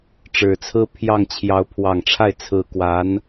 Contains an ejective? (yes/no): no